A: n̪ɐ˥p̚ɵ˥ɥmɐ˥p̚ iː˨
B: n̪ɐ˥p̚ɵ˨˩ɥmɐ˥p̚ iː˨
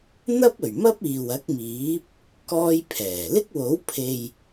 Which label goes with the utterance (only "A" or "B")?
B